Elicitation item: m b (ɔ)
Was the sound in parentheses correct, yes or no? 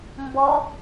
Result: yes